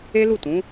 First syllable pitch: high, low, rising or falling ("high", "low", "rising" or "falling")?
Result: high